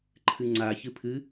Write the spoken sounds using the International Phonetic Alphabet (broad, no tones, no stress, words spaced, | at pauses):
ǃʰɨŋ͡ǀa çɨpʰɨ